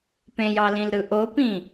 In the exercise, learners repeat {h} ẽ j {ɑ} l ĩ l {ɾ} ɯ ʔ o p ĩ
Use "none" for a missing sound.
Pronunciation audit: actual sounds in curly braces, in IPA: p, ɑ, ɾ

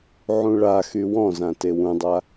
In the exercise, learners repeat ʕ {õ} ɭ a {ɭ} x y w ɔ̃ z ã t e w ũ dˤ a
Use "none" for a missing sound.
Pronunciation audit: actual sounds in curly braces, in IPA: ũ, none

